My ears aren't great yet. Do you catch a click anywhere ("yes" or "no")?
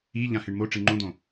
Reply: yes